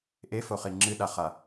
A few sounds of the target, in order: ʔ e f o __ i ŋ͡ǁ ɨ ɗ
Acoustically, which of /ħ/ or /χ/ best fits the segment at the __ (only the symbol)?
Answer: χ